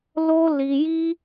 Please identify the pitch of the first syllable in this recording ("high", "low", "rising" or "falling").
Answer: high